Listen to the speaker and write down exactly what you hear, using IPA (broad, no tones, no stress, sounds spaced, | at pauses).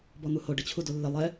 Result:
b ɔ n̪ u h o ɖ ɪ t͡ɕʰ u d o lː ɪ lˠ ɛ